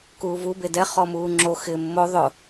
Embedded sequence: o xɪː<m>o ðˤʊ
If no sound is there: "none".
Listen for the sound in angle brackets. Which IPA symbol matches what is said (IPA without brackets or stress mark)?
mː